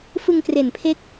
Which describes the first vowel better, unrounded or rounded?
unrounded